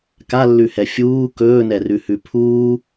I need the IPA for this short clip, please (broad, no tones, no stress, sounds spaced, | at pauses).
k a lː ʉ h ɛ fʲ uː k ɵː n ɛ r ʉ h ʉ pʰ uː